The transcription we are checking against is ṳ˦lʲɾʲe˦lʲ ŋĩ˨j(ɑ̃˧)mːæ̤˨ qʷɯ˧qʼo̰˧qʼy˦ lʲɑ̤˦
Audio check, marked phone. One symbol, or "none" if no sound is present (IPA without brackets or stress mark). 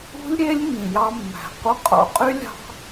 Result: ɑ˧